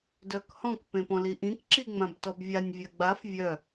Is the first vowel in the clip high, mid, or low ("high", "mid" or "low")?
mid